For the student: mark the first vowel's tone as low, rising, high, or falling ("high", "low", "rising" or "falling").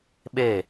falling